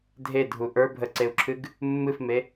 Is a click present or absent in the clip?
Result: present